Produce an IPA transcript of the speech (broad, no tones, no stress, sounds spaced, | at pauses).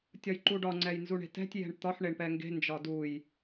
tʲ ɒ j ǃ u ɖ ɒ ŋ͡ǀ ɛ j n z u ɳ e̤ t ɛ̤ tʲ j ɛ̤ ɳ t̪ ɒ ħ ɳ e ɳ p ɛ ŋ ɡ e̤ n d͡ʒ ɒ d u j